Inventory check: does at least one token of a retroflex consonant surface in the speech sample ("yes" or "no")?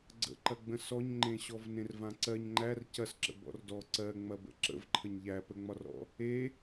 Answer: no